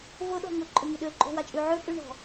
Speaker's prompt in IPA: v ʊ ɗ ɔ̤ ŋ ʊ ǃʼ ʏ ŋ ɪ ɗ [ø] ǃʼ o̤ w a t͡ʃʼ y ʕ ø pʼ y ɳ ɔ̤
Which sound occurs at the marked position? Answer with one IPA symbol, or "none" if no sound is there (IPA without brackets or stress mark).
ø